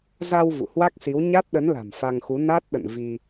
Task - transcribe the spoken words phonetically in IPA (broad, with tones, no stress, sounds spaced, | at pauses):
z a˧ w v ṵ˧˨ h w a˦˥ k̚ s i˨˦ w ɲ a˦˥ t̚ ɗ ə˨˦ n l a̤˨˩ m f a˧ ŋ x u˨˦ n a˦˥ t̚ ɗ ə̰˧˨ n v i˧